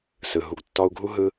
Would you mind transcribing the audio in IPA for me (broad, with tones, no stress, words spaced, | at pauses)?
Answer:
sɯ˨ ɦu˨ɡtːɔ˧u̯ɡʱu˦ ɦɯ˦